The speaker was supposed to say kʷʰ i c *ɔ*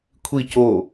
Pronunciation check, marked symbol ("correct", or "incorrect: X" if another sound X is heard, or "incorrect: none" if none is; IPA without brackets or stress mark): incorrect: o